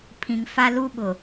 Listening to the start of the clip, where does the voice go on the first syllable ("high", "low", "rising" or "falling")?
low